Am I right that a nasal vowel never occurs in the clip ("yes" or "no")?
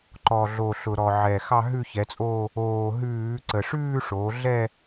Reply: yes